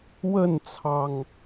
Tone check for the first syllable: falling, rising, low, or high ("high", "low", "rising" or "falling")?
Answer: falling